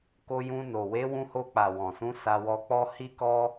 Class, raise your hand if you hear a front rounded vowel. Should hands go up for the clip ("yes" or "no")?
no